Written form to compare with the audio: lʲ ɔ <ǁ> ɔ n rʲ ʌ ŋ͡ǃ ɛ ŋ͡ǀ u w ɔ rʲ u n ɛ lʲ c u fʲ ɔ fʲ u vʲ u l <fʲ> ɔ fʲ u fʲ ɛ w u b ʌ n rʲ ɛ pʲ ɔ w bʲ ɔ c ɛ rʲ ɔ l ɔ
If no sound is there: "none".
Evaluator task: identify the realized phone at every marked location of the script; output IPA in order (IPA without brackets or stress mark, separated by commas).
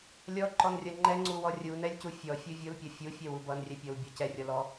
ǃ, pʲ